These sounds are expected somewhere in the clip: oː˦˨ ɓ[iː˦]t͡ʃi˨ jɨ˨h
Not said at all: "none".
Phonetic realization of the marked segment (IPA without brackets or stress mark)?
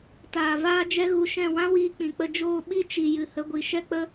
i˦